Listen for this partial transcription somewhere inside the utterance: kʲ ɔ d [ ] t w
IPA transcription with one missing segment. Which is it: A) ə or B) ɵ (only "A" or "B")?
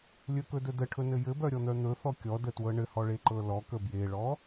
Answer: A